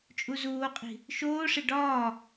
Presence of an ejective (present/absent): present